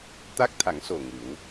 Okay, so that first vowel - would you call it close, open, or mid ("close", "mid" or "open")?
open